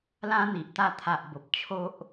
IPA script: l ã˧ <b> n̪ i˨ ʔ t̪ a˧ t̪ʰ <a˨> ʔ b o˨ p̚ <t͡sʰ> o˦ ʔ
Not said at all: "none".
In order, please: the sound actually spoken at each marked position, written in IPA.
none, a˨, t͡ɕʰ

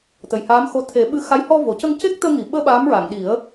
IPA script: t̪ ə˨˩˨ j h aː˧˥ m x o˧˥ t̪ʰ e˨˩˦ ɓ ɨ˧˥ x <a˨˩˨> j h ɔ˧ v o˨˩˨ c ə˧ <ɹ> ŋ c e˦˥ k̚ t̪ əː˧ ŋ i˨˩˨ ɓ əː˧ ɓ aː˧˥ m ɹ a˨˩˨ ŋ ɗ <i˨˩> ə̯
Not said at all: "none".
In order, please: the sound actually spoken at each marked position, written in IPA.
a˧˥, none, i˨˩˦

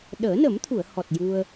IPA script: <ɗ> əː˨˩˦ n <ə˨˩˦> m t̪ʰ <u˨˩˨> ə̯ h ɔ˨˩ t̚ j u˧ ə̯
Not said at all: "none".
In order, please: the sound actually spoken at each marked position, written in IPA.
ɗ, ə˨˩˦, u˨˩˨

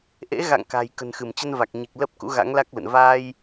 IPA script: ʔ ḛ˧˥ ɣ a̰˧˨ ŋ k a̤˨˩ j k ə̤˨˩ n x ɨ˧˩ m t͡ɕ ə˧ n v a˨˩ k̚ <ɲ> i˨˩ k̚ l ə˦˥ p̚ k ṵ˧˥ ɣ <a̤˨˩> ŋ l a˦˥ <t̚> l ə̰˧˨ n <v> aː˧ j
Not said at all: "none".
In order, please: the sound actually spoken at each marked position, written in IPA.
ɲ, a̰˧˥, k̚, v

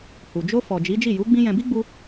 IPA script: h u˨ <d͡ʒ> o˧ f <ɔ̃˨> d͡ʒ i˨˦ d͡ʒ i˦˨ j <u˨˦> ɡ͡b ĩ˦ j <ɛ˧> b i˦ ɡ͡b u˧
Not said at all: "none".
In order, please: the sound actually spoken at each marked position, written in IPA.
d͡ʒ, ɔ˨, u˨˦, ɛ̃˧

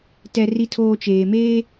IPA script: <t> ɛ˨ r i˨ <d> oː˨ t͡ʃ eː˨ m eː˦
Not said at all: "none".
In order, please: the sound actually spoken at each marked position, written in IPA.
t, tʰ

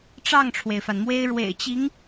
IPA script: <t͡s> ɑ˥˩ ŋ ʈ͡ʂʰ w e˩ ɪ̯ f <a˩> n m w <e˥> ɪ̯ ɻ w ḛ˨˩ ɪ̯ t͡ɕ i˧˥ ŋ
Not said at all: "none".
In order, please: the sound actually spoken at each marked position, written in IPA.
ʈ͡ʂ, a˩, e˥

